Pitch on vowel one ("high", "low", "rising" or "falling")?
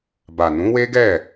low